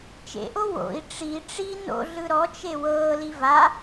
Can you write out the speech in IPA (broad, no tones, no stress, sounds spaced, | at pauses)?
t͡ʃ ḛ ʔ o w o̰ i̯ ʈ͡ʂ i ʈ͡ʂ i n o̰ ɮ ɯ ɾ ɔ t͡ʃ e w ɤː l i v a